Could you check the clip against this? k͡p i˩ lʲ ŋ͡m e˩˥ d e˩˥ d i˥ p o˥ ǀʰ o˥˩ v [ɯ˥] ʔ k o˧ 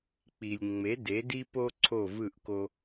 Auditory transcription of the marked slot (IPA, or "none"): ɯ˥˩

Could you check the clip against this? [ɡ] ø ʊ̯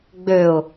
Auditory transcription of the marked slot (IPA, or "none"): ɡ͡b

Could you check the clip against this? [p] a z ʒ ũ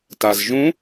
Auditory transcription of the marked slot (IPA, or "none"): t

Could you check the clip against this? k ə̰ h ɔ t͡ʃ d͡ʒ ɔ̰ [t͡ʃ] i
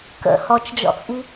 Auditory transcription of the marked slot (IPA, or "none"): t͡sʼ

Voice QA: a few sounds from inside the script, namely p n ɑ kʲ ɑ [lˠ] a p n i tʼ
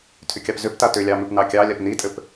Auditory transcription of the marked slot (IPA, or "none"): lʲ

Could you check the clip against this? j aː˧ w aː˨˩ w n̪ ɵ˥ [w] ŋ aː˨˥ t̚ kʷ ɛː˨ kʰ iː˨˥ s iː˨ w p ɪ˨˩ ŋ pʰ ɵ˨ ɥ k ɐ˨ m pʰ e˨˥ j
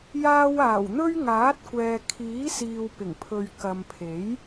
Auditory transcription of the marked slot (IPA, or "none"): ɥ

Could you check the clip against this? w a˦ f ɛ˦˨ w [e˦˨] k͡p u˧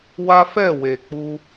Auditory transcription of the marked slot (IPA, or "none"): e˨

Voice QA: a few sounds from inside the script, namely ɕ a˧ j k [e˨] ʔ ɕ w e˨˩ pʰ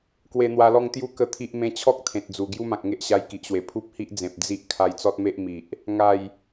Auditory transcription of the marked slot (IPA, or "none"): i˨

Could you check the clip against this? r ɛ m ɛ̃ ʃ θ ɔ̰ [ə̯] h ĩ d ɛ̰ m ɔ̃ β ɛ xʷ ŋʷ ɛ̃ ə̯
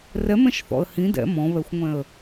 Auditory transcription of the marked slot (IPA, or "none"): ə̯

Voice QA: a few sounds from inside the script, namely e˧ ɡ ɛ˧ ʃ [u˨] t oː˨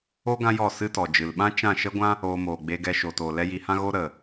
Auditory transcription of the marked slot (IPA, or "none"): o˨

